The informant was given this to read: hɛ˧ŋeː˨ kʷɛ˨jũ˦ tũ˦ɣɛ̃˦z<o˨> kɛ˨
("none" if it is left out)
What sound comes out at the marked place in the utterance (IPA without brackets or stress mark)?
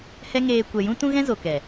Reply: o˨